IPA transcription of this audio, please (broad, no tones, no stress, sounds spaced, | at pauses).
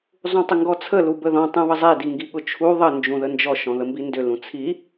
zˤ ũ tˤ ʏ ŋ ɡ ɔ t͡sʰ ə l u b ə ð ɔ̃ tˤ ũ β ə zˤ e d i ŋ ɡ i ɠ ʊ t͡ʃʰ u ðˤ ə n d͡ʒ ũ ð ə n d͡ʒ ɔ ʃ ɔ̃ ð ə m b i n d ʏ l ũ t͡sʰ i